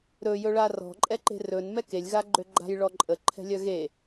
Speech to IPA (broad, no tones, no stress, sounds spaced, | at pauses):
ɾ ɵ j ɵ ɭ a r ɔ̤ ǃʼ ɛ ǃ e̤ r ɵ n m ɛ k e lʲ ɣ a ɡ͡ǃ ø ɡ͡ǃ a̤ j ɭ ɔ ǃʼ ə ǃʰ ɛ̤ lʲ œ ɣ e